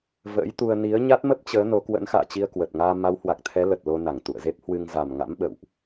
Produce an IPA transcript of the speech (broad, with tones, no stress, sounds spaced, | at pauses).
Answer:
v ə̰ː˧˥ j t̪ u˧ ə̯ n i˨˦ ə̯ ɲ a˦˥ t̚ m ə˦˥ p̚ t͡ɕ əː˨˦ n o˨˦ k w ə̰˧˥ n x a̰ː˧˨ t͡ɕ i˧ ə̯ k w ə˨˩ t̚ ŋ aː˧ m a˨˦ w h w a˨˩ k̚ t̪ʰ ɛ˨˦ l ə˨˩ t̚ l o˧ n a˧˩ ŋ t̪ ṵ˧˨ ə̯ z e˦˥ p̚ h w ɨ˧ ŋ z a˨˩ m ŋ a̰˧˥ m ɓ ə̰˧˨ w ʔ